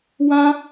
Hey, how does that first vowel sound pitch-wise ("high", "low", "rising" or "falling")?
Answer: high